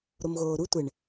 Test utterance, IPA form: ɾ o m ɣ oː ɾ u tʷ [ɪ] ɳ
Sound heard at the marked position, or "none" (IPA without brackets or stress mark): ɪ